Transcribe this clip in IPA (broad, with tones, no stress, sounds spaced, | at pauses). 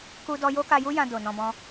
k u˦ d ɔ˦ j o˦ k a˧ j u˦ j ã˧ d o˨ n ɔ̃˧ b ɔ̃˦